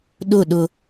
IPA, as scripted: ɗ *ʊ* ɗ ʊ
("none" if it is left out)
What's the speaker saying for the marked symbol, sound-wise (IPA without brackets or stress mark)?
ʊ